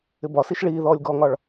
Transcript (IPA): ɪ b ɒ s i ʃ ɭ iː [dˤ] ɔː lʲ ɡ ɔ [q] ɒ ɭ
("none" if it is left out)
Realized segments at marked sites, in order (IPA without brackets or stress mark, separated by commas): ð, ŋ